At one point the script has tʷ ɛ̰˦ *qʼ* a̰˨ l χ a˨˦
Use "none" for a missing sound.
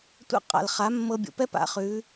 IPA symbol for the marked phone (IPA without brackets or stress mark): qʼ